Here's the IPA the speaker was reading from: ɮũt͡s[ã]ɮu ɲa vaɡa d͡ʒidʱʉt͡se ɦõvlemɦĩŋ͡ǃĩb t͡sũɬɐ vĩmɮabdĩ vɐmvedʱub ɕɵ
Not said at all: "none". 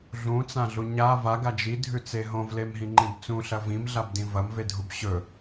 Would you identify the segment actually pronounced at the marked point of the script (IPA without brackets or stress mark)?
ã